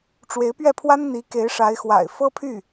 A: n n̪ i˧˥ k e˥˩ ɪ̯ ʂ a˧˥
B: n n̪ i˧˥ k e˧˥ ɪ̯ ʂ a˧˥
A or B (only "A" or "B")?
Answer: B